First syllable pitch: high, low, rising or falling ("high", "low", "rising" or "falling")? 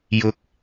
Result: high